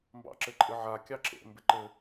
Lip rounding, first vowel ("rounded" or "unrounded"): unrounded